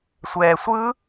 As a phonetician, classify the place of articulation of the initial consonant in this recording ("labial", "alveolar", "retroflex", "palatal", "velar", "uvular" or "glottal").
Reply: alveolar